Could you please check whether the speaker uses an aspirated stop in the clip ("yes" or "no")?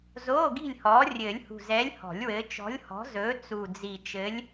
no